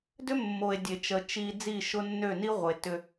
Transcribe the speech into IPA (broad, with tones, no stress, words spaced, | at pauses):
dʏ˦mːo˨e̯ dʲe˨t͡ʃə˨ t͡ʃi˨ d͡zi˦˨ʃʊ˦nːø˦˨ ni˦ʁʷə˨e̯ tʏ˦